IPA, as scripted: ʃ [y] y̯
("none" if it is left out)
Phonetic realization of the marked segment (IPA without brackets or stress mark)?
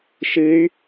ɨ